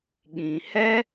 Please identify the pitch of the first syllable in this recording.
low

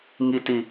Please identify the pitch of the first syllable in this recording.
high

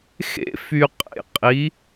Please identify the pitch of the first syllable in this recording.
high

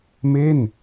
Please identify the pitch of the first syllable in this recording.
falling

